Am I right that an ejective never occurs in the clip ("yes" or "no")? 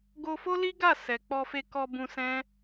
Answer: yes